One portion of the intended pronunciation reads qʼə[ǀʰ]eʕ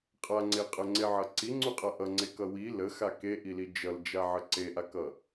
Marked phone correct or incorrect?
incorrect